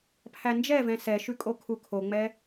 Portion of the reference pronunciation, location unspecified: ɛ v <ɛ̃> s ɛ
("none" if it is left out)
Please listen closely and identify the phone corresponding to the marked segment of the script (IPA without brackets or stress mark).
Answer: ɛ̃